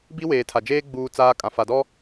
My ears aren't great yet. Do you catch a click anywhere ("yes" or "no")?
no